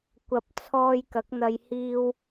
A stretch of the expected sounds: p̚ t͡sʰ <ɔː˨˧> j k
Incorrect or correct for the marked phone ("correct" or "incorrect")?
incorrect